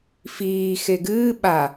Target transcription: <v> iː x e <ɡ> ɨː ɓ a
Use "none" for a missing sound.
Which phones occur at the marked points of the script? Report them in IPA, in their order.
f, ɡ

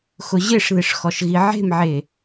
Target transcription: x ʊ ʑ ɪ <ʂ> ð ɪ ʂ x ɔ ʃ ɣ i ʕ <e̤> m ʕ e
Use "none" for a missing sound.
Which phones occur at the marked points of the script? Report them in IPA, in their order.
ʂ, e̤

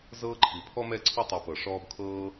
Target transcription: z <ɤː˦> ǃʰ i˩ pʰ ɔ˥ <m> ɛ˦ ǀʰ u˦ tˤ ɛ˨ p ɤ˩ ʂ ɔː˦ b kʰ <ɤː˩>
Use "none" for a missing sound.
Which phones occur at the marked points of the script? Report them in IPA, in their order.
ɤː˦, m, ɤː˥

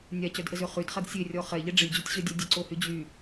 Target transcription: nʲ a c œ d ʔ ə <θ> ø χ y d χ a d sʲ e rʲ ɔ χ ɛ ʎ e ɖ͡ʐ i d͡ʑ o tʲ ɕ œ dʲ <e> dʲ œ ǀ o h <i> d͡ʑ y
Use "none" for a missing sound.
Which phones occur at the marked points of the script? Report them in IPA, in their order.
z, e, y

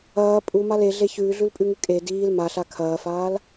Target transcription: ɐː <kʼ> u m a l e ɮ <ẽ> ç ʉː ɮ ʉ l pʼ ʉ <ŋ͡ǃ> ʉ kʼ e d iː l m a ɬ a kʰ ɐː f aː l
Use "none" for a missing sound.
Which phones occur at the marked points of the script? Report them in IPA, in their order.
pʼ, e, ŋ

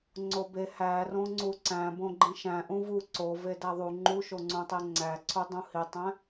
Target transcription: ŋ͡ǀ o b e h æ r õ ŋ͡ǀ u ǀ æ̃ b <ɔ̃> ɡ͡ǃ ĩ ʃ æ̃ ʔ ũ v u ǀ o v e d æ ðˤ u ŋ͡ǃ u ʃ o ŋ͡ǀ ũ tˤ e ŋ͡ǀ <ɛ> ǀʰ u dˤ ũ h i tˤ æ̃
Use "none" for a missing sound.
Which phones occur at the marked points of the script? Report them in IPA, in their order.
õ, æ

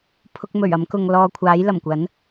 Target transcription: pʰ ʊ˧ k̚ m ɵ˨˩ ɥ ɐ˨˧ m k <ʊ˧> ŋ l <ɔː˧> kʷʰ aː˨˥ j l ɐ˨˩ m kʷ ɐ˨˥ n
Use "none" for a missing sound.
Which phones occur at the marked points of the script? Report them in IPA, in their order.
ʊ˨, ɔː˧

